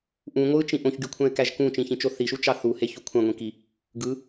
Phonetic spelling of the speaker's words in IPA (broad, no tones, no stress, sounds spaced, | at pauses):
ʔ ũ ŋʷ ɯ t͡ʃ ĩ ʔ õ ç ɡ y kʷʰ æ̃ ɪ̯ k æ ʒ k ũ t͡ʃ ĩ ç ĩ t͡ʃ o θ i ʃ u t͡ʃ ɑ θ u h e ç u kʷʰ ɑ̃ ŋʷ ĩ k i | ɡ ɯ